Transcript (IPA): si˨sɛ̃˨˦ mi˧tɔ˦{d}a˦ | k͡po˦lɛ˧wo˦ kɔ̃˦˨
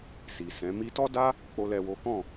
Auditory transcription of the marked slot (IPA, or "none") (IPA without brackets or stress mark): d